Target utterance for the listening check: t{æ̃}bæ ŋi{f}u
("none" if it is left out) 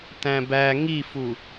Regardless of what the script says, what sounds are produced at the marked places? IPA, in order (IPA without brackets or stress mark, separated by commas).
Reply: æ̃, f